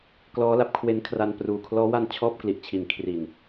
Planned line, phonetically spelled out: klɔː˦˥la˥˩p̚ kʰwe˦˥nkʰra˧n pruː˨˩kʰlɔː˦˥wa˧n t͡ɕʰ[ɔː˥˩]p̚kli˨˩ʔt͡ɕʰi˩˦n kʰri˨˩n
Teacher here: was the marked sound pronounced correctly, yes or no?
yes